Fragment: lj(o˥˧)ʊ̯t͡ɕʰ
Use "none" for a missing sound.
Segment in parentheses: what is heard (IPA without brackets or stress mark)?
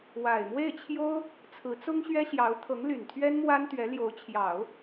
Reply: o˧˥